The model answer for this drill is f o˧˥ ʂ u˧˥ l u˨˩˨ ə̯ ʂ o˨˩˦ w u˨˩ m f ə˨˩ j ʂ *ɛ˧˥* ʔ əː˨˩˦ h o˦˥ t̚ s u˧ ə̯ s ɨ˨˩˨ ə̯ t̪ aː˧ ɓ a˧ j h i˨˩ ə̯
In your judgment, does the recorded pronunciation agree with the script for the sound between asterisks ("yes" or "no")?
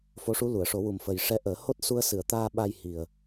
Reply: yes